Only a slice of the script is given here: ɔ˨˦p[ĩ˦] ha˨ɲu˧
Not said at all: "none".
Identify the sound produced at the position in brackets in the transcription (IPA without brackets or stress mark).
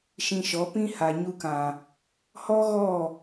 ĩ˦